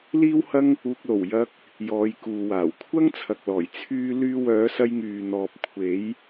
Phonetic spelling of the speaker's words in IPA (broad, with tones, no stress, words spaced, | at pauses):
liː˥whɐ˥ŋ | uː˧k̚lo˨˩w jɐ˧k̚ | jɔː˨˧jkuː˨waː˨˩w kʷʰɐ˥ŋ t͡sʰɐ˨k̚lɔː˨˩j t͡sʰyː˥ lyː˧ wœː˨˧sɐ˧jŋyː˨n̪ɔː˨p̚ kʷʰe˨˧j